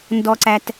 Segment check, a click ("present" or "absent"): present